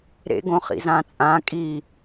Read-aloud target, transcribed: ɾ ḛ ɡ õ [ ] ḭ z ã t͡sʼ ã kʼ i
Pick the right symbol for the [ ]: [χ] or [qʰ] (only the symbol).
χ